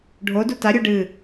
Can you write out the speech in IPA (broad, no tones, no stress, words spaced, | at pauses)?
ɖʱodu taɾʲu ɖɨ